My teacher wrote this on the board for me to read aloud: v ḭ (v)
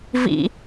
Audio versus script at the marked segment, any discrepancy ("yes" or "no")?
yes